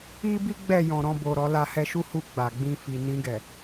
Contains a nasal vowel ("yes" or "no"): yes